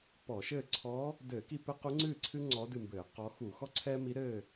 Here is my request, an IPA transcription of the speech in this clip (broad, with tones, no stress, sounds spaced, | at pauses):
p ɔ˧˩˧ ʃ ɘː˥˨ ǀʰ ɔ˧˥ | d ɘː˧˩˧ k i˥˨ p ɘ˥ q u˧˥ ŋ͡ǀ ɨː˥˨ ǀʰ ɨ˥ ŋ͡ǀ ɔ˧˥ d ɨ˥˨ m b ɘː˧˩˧ q ɔ˧˥ x u˧˩˧ x ɔ˥ ǀʰ ɛː˥ m i˧˥ ɾ ɘː˥˨